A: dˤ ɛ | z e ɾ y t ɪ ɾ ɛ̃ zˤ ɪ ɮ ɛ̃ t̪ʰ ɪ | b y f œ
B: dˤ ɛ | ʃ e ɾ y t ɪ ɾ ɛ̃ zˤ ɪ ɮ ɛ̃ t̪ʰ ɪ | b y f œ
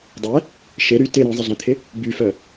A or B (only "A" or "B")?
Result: B